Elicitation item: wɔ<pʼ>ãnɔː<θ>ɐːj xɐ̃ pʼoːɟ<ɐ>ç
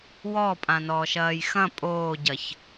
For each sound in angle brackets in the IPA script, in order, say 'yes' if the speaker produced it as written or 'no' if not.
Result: yes, no, yes

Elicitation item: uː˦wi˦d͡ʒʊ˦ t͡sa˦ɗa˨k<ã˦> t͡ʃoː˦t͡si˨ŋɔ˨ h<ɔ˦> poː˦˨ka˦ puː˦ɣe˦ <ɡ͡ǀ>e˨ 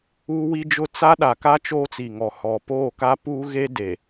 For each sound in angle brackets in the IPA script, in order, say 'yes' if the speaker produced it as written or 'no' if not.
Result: no, no, no

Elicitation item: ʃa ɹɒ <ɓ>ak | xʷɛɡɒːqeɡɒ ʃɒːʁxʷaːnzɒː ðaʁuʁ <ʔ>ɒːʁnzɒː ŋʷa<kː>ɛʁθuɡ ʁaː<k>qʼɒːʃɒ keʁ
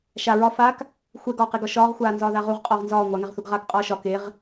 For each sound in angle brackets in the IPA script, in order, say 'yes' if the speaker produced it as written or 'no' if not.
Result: no, no, no, yes

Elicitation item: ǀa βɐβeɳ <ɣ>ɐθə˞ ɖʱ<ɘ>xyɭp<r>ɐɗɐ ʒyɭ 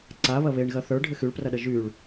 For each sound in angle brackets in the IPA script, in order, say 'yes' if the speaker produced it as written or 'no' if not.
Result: yes, yes, yes

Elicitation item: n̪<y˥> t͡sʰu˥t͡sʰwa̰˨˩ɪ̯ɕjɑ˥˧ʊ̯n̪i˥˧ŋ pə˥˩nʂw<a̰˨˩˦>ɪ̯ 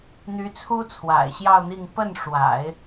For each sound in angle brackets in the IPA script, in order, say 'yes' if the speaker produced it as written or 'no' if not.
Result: no, yes

